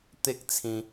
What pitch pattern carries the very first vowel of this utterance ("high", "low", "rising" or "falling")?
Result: high